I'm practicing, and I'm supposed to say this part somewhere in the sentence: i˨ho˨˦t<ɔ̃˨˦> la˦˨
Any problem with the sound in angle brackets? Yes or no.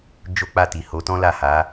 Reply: yes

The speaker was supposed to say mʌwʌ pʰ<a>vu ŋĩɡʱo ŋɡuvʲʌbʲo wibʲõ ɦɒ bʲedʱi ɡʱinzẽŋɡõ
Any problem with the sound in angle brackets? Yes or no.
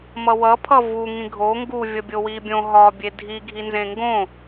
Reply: yes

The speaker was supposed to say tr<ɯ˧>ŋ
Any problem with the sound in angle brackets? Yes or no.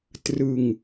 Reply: no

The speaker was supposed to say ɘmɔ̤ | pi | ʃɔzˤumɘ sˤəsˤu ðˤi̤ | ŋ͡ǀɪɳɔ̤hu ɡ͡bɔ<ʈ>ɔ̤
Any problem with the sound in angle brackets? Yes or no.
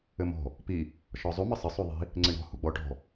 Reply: no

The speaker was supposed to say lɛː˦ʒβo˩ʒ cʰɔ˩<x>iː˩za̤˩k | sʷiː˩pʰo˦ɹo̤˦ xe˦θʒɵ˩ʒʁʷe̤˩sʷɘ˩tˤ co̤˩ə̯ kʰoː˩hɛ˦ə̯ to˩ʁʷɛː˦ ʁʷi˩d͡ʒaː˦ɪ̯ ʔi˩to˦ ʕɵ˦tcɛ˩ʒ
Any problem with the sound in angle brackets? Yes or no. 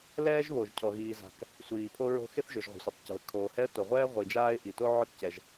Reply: yes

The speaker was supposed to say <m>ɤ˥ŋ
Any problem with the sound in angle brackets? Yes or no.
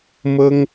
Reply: no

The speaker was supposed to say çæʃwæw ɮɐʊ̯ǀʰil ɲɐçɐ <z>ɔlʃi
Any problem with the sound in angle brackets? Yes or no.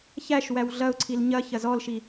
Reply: no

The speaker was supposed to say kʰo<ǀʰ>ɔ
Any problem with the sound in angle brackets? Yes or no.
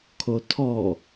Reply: yes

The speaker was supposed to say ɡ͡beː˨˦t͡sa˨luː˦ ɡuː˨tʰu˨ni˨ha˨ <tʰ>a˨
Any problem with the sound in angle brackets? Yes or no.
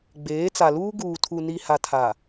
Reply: no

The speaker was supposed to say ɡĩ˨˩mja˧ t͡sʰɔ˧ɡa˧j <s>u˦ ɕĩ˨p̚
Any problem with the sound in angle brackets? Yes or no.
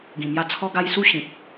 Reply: no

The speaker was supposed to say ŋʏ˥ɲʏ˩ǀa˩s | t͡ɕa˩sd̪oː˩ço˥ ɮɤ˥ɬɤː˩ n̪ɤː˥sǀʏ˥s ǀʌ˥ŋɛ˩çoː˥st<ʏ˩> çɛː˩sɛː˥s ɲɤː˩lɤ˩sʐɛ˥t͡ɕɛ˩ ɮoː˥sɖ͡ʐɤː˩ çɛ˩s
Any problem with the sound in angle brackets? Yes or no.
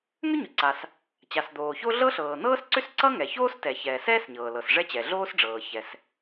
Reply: yes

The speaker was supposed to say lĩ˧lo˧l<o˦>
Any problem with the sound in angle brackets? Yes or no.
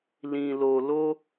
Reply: no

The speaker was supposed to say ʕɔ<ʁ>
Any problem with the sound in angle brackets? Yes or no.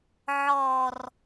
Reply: yes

